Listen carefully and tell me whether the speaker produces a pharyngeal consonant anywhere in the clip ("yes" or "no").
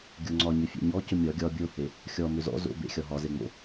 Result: no